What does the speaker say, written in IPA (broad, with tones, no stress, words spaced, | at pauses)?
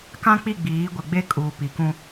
kã˦k͡pi˦˨ɡ͡biː˨˦ ɡʷɪ˨ ɡ͡be˦kʼuː˨pi˨kũ˦